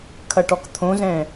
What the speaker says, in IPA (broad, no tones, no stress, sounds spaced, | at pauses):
kʰ ɐ ʈ ɔ k t̪ʰ õ z ɛ̃